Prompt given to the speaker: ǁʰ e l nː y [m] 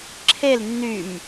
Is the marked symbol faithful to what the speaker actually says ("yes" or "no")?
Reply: yes